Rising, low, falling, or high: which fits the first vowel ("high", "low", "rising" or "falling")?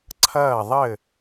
falling